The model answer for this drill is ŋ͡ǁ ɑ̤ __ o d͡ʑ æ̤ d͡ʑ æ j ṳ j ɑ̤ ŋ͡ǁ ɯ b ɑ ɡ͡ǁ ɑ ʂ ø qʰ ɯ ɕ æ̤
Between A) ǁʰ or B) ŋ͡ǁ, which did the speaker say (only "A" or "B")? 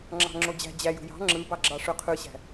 B